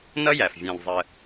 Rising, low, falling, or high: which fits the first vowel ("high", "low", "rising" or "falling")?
high